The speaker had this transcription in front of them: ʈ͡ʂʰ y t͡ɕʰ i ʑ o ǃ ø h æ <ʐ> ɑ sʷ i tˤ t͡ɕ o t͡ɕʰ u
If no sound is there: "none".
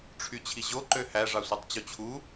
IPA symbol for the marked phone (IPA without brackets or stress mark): ʐ